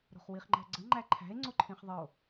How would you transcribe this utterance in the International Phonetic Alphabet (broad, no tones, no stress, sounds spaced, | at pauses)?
ɾ o̤ χ w i χ ŋ͡ǃ æ̤ ɡ͡ǀ ə ŋ͡ǃ æ ǃʰ æ̤ e̯ ŋ͡ǀ o ǃʰ ĩ χ ðˤ ə o̯